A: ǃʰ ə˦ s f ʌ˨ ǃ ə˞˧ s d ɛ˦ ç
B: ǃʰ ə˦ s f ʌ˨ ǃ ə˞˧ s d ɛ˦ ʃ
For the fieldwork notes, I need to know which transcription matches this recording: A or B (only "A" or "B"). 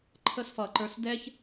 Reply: A